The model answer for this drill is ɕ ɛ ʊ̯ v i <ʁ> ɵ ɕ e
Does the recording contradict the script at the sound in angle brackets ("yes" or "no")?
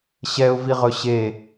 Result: no